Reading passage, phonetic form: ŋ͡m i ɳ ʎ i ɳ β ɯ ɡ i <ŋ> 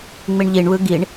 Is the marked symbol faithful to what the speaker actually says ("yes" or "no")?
no